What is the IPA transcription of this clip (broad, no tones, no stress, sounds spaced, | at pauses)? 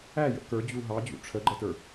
æ j ə̰ k ə˞ d͡ʑ u ɦ ɑ d͡ʑ ṵ ʈ͡ʂʰ ə ɡ͡ǃ ə t ə˞